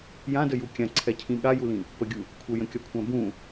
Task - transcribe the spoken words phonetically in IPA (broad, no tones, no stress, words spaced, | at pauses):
jãdəju kʲãǀʰɛcʰĩ ɠajulĩ | pəɡʲu | kʷʰəjə̃kʲɒkʷʰã bũ